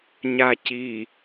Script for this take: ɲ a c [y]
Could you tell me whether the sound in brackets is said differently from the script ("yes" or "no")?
yes